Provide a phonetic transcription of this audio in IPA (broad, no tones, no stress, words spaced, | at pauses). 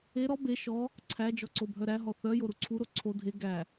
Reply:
e ɾɔ be ʃɔ | ǀʰæd͡ʒɔ ǀobʱœɾæɦɔ θœjo ɾuǀʰuɾo ǀʰo dʱe ɡæ